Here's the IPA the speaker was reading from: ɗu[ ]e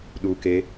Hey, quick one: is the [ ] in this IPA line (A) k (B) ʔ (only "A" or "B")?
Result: A